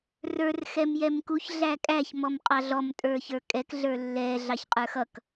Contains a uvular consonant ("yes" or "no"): yes